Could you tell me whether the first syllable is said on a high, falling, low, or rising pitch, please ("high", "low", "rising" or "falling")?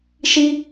high